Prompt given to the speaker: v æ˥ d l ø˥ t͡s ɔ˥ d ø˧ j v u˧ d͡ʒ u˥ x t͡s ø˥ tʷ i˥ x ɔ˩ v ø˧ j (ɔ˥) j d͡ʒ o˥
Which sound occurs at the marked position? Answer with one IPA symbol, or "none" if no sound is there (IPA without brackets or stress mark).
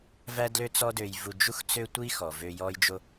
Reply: ɔ˥